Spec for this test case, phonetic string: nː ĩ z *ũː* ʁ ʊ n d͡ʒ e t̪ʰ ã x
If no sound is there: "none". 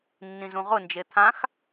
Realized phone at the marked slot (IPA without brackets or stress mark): ũ